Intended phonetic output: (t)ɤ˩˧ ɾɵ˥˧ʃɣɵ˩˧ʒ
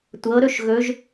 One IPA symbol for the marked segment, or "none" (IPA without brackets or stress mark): tʷ